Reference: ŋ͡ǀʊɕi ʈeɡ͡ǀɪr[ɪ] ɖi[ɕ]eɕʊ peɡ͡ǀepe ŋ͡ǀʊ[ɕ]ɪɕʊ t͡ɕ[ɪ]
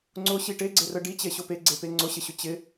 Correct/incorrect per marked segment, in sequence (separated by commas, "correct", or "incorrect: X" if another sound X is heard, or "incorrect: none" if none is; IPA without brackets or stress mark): incorrect: ə, incorrect: t͡ɕ, correct, correct